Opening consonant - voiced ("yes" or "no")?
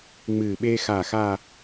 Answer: yes